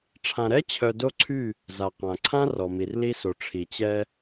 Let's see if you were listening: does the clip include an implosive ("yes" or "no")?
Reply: no